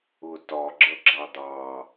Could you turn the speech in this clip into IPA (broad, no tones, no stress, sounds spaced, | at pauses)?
ʊ t ɒ ɡ͡ǁ ʌ ɡ͡ǁ ɑ d̪ ɑ